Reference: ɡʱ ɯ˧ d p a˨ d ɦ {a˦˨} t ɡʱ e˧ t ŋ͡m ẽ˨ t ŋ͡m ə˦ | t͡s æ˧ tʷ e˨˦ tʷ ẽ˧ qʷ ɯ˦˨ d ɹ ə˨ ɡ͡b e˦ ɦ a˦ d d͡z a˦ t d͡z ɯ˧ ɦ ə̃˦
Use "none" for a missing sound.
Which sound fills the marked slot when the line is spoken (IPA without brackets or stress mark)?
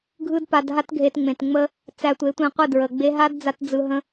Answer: a˦